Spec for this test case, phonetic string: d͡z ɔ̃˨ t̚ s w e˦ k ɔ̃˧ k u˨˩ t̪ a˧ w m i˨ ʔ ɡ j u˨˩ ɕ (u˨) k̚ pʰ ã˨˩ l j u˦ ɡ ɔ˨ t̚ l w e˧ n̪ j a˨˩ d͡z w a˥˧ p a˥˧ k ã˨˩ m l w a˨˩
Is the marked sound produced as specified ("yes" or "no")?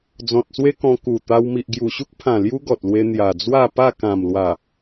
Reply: no